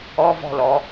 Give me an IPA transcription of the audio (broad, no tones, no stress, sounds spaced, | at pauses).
ɔ v ɔ̤ l ɔ